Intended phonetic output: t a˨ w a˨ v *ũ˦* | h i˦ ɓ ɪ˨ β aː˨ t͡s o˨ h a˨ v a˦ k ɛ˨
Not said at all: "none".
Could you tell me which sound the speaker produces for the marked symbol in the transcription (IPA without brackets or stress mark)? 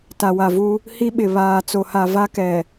u˦